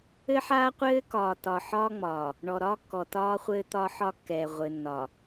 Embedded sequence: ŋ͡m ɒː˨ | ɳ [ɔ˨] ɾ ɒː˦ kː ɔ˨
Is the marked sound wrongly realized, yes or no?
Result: no